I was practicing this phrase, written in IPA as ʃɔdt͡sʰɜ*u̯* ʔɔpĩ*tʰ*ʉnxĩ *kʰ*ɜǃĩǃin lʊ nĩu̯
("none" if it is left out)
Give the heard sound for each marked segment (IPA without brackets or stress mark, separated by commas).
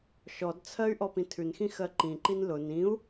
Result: y̯, tʰ, x